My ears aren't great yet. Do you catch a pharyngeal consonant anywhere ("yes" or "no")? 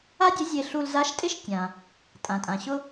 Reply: no